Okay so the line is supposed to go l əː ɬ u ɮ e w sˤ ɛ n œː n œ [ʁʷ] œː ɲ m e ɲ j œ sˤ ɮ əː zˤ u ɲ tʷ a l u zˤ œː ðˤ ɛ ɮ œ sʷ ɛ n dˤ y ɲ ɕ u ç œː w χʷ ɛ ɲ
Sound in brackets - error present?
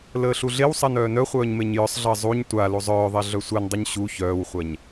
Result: yes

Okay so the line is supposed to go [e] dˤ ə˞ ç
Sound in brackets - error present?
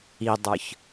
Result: yes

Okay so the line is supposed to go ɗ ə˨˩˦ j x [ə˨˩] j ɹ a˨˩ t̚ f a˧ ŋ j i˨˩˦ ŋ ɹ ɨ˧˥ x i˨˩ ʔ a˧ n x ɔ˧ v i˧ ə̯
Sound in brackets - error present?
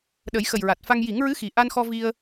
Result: no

